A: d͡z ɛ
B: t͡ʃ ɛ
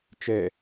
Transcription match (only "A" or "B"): B